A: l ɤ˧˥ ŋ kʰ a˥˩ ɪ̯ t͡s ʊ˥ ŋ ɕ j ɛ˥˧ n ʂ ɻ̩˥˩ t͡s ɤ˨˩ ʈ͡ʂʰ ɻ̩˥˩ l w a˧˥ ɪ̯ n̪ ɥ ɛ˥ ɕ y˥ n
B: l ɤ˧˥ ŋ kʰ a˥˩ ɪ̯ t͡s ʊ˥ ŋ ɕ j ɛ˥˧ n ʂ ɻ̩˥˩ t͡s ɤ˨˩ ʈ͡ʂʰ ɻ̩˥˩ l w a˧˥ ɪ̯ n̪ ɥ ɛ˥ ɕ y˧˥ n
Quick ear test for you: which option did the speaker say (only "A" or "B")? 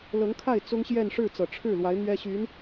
B